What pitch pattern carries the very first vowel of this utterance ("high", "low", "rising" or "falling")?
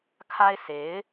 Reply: high